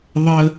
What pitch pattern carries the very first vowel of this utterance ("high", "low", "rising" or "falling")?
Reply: high